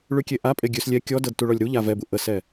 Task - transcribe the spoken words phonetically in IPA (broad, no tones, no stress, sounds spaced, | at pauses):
ɭ ʉ kʲ e ʔ a pʼ e ɡʲ ʉ s lʲ ɛ kʲ ɔ d ɤ d t u ɭ ɔ lʲ ɾ u ʎ a v ɛ b u ʔ ə s ɛ